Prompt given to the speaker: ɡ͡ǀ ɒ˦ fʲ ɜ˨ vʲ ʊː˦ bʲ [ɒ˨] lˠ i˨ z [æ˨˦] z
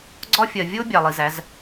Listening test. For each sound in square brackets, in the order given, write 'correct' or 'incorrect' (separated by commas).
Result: incorrect, correct